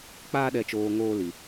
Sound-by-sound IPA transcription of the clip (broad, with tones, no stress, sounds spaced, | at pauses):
k͡p aː˦ ɗ ɛ˧ t͡ʃ oː˧ ŋ oː˦ l i˧